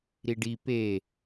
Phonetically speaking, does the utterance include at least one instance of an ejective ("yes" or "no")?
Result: no